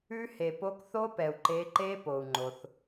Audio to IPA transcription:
ʉ˦˥ h e˩ p o˨˦ k θ o˦˥ p ɛ˩ u̯ ǃ e˨˦ ǃ e˦˥ p o˩ u̯ ŋ͡ǃ o˩ θ

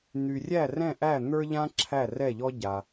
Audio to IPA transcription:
n̪ y˩ rʲ æ˥˩ r ɛ̃˥˩ ʔ æ˥˩ n̪ ə˞˥ ʎ ã˥ ǁʰ æ˥˩ r ɛ˥˩ ʎ ɔ˥ ɟ a˩

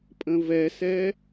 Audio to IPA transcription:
pʼ ə̃ v ɛ s ɛ

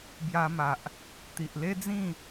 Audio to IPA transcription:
b j a˧ m a˨ ʔ | t̪ i˨ ʔ l e˦ d͡z ĩ˥˧

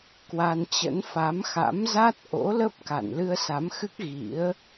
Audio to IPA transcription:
k w a˧ n t͡ɕ ə̰˧˥ n f a˨˦ m x a̰˧˥ m z a˦˥ t̚ ʔ o̰˧˥ l ə˦˥ p̚ k a̰˧˨ n l ɨ˧ ə̯ s a˨˦ m x ɨ˦˥ k̚ ɣ ḭ˧˥ ə̯

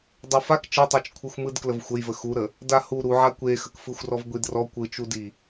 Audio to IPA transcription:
dˤ u f a k t͡ʃ ɯ tˤ i t͡ʃ kʷʰ ɯ xʷ m ɯ d k l ə v xʷ ə j v ə x u ɾ ə | d a h u ɾ u ʕ a kʷ e x ə k f ɯ xʷ r ɔ v ɡʷ i d r ɔ kʷ ɯ t͡ʃ u d i

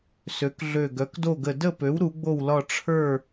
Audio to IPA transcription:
s ø˩˥ k ɮ ø˧˩ ɡ œ˩˥ k d o˥˨ ɡ ə˧˩ d ə˥˨ p ø˩˥ w ɾ u˩˥ ɡ͡b o˥˨ w l ɒ˥˨ ʈ͡ʂʰ ə˞˥˨

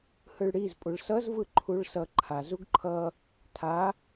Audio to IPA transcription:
h ɯ ɭ ɽ i z pʼ u ɭ s ʌ z v ɯ ǃʰ u ɭ s ʌ ǃʰ a z u ɡ ǃʰ ʌ | tʰ a

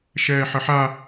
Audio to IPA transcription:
ʃ ɛː ħ ə ħ a

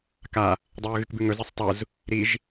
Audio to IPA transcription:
k a | dˤ ɵː ɣ ɨ k b ʉ ŋ ɵ z e sˤ tˤ u z | ɾ i ʒ

